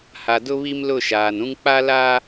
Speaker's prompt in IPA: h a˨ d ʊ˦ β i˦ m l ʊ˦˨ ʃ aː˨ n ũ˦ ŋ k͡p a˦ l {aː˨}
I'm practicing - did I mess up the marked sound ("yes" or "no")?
yes